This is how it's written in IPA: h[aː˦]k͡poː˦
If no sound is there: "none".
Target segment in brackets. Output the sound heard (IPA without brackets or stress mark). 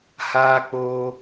aː˦